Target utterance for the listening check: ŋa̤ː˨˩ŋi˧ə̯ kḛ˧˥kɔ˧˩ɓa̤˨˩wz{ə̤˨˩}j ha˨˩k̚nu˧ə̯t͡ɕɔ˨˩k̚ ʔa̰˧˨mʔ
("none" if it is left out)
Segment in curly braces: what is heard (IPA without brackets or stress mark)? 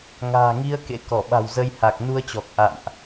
ə˧